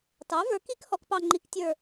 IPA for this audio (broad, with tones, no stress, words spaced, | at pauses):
tɑ˩˥və˞˩˥ki˦˥k hɔ˩˥kpɑ˥˧ŋ͡ǃi˦˥k tʲə˞˥˧